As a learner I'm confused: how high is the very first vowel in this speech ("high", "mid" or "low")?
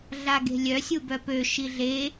low